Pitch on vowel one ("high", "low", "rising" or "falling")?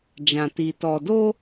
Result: low